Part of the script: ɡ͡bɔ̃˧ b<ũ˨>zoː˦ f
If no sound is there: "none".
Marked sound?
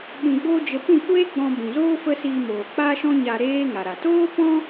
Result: ũ˨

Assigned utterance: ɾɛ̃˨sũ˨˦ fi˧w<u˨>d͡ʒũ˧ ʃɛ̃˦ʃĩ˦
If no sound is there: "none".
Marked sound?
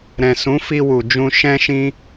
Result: u˨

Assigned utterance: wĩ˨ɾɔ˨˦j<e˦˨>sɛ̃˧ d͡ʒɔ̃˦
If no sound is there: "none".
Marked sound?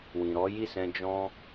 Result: i˦˨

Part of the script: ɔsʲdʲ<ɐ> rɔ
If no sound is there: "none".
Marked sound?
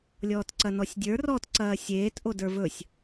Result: ə˞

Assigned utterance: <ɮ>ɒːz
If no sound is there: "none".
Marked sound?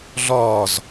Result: ɮ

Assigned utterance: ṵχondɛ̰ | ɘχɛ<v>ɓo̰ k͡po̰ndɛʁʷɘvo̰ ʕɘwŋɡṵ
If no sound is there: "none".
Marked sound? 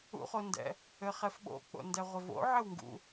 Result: f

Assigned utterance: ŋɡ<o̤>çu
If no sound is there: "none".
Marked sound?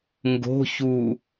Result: o̤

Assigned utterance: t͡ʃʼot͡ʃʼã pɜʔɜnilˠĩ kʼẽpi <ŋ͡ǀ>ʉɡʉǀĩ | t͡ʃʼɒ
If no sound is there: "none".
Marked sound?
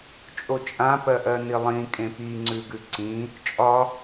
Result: ŋ͡ǀ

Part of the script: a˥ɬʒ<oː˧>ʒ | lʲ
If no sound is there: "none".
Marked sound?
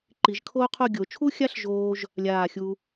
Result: oː˧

